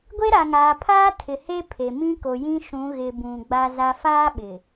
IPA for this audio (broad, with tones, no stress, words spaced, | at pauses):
ɡʷe˦ɾa˨ŋaː˨pʰaː˦ tʰɪ˨he˦pʰe˨mĩ˦ ko˨jĩ˦ʃũ˨˦ ɣɪ˨ bũ˨ɡ͡ba˦za˦ faː˦ɓɪ˨